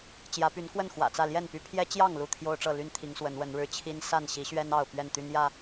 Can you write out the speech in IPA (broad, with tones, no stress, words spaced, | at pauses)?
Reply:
t͡ɕjä˨˦py˨˦nkwə˥˨n xwä̰˨˩t͡sä˥˨ ljɛ˥˨npy˥˨ pʰjɛ˦t͡ɕjɑ˥˨ŋ lu˥˨t̪ʰjo˦ʊ̯ʈ͡ʂɤ˥˨ly˦n t̪ʰi˨˦ŋswə˨˦nwə˨˦nɻɻ̩˥˨ t͡ɕʰi˦n sa˥˨nɕi˨˦ɕɥɛ˦n ɑ˥˨ʊ̯ pɥɛ˥˨nt̪y˦n jä˥˨